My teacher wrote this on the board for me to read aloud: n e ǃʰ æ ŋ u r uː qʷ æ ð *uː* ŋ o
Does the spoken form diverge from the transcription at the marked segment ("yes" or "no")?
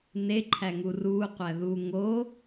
no